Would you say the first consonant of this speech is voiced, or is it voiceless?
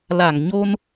voiced